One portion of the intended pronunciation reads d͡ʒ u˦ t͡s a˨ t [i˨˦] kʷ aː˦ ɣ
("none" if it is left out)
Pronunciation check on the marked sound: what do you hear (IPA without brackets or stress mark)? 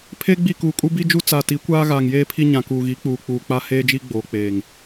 i˨˦